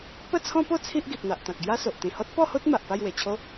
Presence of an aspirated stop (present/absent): present